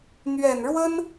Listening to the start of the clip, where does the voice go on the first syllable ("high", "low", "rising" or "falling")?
low